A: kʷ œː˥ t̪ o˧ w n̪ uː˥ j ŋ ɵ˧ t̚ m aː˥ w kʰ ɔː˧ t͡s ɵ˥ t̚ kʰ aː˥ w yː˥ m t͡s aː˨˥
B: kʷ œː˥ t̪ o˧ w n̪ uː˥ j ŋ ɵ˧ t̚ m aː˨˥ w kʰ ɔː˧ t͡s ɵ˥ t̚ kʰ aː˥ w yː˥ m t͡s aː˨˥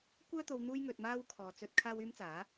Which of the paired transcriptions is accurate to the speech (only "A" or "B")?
A